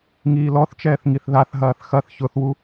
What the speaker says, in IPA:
ŋ iː l ɔ θ t͡ʃ ɛː θ ŋ i θ ð a θ ɦ ɐː θ x ɐ θ ç ʊ θ w u

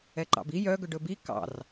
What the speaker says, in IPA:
ɛ ǃ ɑ̰ b i j œ ɡ ɵ ɖ ɵ b i k ɑ̰ r

